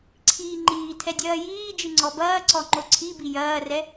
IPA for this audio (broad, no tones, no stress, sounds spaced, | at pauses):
ǀʰ iː ŋ͡ǃ iː tʰ ɛ dʲ ɐː j iː d͡ʒ ɨ ŋ͡ǀ ɔ b ɐː ǀ ɔ ŋ͡ǃ o ǀʰ i b i j ɐː r ɛ